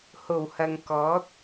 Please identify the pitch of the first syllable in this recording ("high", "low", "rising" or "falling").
low